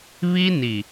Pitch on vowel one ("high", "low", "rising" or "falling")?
high